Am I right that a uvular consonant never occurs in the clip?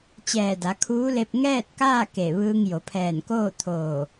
yes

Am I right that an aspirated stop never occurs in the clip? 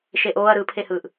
no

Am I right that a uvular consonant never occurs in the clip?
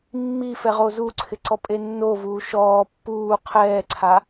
no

